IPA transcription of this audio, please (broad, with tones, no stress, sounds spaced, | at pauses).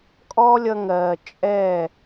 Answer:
kʼ ɔ˦ lʲ ʌ˧ ŋ ɜː˨ t͡ʃʼ ɛː˦˨